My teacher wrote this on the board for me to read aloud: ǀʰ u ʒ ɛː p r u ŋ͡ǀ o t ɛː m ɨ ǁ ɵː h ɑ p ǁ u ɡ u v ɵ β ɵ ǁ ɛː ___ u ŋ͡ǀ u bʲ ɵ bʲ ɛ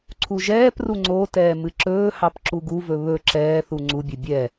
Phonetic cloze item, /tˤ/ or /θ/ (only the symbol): θ